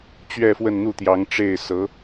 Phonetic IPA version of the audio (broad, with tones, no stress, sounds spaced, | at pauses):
t͡ɕ ɥ ɛ˥˧ f w ə˥˧ n n̪ u˥˩ t̪ j ɑ˧˥ ŋ ʈ͡ʂ e˥˩ ɪ̯ s ɤ˧˥